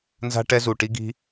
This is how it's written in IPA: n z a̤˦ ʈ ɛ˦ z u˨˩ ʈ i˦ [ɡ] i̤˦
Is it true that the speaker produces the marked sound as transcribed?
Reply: yes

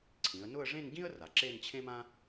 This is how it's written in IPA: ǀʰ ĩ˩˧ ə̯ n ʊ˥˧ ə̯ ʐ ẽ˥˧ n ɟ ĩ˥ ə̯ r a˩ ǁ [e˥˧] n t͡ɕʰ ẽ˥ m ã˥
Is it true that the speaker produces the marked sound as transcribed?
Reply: yes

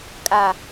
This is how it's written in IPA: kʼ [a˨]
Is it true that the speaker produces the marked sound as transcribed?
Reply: yes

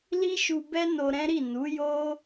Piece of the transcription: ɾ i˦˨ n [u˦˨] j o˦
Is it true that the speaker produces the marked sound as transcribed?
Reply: no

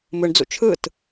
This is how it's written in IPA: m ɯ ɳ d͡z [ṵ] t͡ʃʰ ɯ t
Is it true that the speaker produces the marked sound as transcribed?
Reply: yes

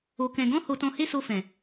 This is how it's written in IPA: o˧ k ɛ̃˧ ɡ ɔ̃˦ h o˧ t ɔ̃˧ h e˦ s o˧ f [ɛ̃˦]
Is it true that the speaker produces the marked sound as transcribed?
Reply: no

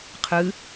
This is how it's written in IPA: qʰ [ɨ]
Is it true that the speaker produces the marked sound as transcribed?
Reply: yes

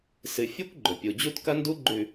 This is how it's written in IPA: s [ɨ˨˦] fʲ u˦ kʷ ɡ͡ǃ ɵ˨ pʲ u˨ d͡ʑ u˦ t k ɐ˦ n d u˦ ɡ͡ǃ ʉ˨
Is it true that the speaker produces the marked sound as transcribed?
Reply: no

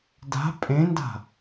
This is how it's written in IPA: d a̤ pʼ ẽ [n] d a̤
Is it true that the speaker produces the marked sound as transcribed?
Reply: yes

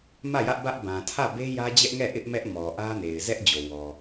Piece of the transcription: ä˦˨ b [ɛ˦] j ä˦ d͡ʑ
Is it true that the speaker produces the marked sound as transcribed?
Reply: no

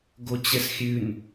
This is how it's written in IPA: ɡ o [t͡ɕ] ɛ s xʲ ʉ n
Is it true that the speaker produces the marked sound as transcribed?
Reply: yes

